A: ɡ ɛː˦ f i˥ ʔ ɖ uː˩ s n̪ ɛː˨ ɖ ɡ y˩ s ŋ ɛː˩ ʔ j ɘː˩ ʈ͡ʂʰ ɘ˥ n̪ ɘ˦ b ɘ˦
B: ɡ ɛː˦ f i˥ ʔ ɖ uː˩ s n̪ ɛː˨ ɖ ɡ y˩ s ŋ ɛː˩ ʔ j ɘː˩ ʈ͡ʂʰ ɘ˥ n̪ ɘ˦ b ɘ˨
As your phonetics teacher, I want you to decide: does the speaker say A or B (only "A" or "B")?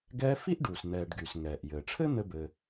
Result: B